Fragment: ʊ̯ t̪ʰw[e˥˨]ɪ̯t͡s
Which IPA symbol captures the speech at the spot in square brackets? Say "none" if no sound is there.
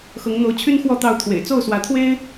ḛ˨˩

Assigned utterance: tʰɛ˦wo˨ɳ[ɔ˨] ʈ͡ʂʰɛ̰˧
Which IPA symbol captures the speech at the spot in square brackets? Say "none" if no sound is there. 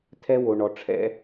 ɔ˨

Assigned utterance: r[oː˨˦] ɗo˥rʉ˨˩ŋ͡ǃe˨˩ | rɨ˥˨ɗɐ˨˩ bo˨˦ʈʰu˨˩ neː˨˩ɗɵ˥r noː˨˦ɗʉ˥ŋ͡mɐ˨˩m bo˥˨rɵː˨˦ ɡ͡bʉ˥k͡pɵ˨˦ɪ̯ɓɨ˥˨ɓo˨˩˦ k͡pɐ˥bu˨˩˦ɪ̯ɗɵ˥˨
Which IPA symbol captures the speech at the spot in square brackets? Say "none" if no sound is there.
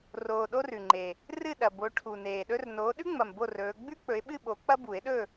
oː˨˩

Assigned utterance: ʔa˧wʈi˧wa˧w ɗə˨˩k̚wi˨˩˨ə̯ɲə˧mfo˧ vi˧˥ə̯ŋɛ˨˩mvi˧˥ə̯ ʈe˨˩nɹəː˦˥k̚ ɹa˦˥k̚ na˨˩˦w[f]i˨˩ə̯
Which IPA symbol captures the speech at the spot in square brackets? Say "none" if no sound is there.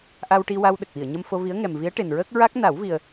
v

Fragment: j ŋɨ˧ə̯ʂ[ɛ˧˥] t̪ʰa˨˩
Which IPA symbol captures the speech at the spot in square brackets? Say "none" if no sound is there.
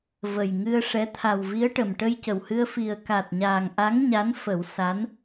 ɛ˧˥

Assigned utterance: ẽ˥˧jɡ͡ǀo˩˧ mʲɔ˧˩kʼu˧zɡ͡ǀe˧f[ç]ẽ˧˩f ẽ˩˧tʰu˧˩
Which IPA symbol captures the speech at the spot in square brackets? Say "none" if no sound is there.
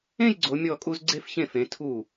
ç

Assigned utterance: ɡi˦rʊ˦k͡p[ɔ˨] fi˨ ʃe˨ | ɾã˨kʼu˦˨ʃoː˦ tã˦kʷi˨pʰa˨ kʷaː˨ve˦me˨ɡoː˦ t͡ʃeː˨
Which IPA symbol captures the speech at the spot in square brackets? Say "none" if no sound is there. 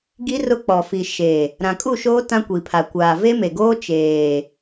ɔ˨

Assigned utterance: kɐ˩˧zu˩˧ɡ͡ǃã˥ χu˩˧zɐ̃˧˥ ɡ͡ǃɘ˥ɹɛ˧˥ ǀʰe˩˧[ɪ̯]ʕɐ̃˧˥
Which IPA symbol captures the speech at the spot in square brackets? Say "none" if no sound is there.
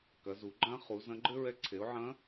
ʊ̯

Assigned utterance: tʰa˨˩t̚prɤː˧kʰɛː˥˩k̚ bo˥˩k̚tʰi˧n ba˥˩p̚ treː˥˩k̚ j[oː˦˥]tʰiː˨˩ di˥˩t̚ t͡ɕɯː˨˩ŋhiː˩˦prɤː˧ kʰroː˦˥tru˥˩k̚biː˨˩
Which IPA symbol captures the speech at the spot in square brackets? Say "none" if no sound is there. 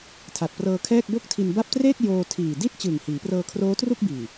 oː˧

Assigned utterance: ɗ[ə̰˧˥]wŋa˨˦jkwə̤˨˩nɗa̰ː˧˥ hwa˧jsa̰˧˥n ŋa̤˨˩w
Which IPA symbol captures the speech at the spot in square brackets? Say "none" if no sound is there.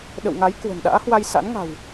ə̰˧˨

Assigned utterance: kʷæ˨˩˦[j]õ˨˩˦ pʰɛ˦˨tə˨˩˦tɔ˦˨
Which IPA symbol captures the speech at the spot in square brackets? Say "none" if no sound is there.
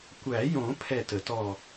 j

